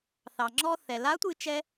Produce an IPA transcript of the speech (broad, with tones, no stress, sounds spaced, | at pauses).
θ ɑ˩ ŋ͡ǁ ɔ˧ θ ɛ˩ l a˧˥ tʷ ɨ˧ t͡ʃ ɛ˧